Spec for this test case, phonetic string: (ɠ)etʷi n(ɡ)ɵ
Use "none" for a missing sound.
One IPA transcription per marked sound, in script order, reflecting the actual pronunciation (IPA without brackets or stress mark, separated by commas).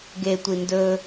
ɡ, d